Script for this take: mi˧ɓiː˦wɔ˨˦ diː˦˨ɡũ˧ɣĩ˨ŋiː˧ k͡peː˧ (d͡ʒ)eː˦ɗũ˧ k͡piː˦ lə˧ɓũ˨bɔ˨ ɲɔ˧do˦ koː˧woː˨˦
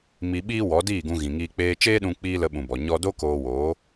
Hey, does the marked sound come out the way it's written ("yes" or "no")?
no